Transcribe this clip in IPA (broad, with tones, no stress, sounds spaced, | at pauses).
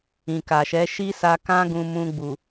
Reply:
ĩ˨ k a˨ ʃ ɛ˨˦ ʃ i˦ s a˧ k ã˦ ɡ ũ˧ m ũ˧ ɡ͡b u˨